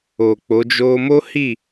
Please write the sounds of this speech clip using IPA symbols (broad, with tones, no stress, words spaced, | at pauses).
o˨k͡po˨˦d͡ʒo˦ mo˦hi˦˨